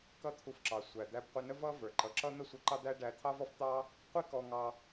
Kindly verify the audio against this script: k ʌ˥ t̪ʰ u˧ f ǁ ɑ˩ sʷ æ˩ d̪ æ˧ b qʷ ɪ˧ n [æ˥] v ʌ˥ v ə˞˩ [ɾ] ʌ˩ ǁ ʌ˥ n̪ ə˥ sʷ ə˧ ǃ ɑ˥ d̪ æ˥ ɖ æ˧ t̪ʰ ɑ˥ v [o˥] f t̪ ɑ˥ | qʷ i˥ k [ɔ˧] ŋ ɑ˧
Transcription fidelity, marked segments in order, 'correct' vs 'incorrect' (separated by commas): incorrect, incorrect, incorrect, correct